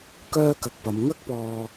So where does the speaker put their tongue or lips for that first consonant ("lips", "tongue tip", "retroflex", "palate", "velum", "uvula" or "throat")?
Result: velum